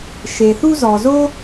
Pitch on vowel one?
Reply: low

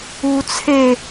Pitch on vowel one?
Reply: high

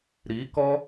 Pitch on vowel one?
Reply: rising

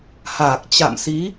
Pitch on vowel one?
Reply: low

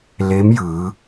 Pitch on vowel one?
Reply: rising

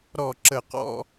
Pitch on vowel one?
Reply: falling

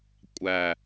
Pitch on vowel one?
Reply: low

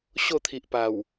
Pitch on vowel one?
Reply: falling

